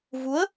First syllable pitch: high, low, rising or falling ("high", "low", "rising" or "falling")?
rising